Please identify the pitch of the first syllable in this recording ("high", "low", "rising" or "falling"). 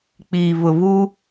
low